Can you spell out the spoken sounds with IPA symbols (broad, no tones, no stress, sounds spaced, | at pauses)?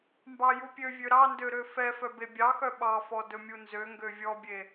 m b ɑ j u pʲ ø vʲ ø ɾ ɑ n d ø ɾ ø f ɛ f œ b e bʲ ɑ x œ ɓ ɑ f ɔ d ɵ mʲ u n z ø ŋ ɡ ø vʲ ɔ bʲ e